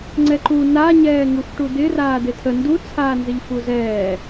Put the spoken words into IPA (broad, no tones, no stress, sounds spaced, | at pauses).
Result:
ŋ͡ǀ ɛ ǃ u n a ɲ ɛː ŋ u f ʈ u d̪ ɪ r aː d̪ ɪ t̪ʰ ə n d u t͡sʰ aː n z ɪ ʎ f u z ɛː